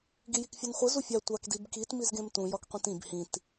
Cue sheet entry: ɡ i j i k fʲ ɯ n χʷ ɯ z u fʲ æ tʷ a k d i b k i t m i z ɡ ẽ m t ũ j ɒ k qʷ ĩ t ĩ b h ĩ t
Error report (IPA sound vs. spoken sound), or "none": none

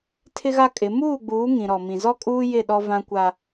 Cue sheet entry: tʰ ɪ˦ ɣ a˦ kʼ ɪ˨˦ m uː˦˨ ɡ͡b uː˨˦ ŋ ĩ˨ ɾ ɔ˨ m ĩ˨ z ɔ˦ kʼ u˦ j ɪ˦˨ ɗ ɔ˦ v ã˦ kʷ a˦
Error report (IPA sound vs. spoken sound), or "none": u˦ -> uː˦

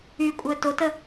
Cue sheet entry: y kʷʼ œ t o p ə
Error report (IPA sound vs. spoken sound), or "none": p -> t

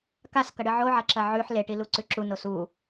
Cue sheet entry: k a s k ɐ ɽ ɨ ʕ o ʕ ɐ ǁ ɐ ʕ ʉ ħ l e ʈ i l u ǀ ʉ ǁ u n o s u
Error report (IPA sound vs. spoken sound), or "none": none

